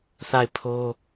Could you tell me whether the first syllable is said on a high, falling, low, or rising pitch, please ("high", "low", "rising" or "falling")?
falling